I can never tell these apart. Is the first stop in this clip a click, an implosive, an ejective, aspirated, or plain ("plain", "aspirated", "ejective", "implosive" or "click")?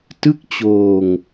plain